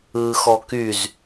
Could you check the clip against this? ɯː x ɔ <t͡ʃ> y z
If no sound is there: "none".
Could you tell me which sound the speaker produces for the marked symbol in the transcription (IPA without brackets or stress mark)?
k